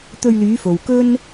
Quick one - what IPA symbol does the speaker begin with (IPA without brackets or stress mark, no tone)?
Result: t̪